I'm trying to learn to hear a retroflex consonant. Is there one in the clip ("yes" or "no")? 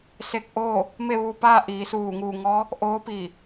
no